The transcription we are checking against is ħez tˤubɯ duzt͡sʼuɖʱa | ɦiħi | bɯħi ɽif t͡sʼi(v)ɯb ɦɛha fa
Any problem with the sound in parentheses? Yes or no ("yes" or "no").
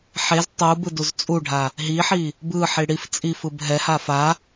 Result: yes